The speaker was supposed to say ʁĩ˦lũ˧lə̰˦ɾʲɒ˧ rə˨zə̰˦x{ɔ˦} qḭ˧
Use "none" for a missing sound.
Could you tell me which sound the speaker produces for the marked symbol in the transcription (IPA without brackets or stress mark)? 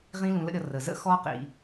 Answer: ɔ˦